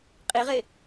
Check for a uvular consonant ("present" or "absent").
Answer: present